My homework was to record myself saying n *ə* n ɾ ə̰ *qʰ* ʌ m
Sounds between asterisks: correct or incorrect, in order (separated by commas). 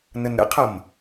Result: correct, correct